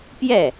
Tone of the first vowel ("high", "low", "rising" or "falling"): falling